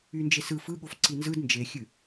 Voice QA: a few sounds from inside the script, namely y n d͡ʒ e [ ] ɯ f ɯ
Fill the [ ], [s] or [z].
s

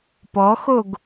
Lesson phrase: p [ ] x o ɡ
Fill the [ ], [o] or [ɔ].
ɔ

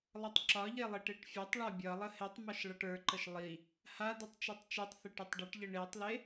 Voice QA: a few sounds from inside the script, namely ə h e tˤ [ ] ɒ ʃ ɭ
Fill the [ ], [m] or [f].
m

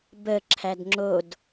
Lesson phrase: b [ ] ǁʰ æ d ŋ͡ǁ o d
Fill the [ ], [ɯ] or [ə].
ə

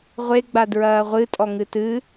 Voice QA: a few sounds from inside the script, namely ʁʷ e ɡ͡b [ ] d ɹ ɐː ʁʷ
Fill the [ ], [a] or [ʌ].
a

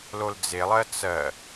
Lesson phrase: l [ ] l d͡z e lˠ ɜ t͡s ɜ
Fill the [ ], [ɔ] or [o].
o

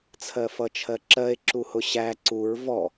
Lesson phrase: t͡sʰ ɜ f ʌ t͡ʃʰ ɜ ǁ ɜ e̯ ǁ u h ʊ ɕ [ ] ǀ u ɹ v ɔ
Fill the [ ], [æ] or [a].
æ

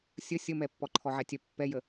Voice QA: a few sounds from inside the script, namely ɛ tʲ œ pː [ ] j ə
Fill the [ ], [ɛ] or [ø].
ɛ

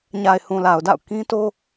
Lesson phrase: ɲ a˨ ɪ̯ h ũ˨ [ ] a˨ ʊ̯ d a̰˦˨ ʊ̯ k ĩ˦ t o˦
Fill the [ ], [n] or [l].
l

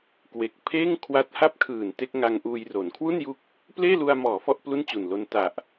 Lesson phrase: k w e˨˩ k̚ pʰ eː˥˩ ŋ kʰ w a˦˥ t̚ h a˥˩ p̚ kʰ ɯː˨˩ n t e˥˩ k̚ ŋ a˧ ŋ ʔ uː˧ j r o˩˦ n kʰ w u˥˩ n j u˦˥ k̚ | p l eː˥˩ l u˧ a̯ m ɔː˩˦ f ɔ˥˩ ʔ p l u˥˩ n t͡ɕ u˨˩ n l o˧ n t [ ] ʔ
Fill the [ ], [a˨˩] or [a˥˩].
a˨˩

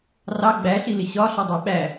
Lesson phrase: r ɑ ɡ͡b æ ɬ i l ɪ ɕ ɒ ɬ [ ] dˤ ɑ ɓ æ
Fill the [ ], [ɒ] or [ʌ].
ʌ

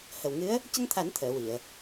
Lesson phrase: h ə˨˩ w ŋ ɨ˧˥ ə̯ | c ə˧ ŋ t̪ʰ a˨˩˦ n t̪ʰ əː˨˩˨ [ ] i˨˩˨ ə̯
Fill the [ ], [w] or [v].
w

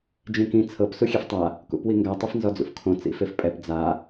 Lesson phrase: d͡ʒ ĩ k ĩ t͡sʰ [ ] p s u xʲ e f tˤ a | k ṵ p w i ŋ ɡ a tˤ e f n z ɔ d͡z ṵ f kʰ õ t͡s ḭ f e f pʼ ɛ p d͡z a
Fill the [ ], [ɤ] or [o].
ɤ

